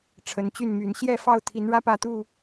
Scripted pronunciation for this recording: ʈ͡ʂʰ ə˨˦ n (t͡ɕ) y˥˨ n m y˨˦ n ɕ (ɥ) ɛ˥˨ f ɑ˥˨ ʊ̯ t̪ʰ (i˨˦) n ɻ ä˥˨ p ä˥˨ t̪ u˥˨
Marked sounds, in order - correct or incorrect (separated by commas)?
correct, incorrect, correct